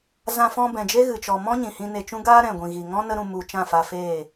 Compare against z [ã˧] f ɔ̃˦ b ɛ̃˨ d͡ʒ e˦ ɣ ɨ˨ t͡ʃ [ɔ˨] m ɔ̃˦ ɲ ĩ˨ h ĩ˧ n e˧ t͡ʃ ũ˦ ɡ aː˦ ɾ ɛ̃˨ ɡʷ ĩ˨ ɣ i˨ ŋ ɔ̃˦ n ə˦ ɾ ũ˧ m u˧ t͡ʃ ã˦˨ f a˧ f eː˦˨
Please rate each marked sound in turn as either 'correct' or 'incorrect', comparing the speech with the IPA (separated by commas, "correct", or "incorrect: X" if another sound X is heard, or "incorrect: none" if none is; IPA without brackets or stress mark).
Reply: correct, correct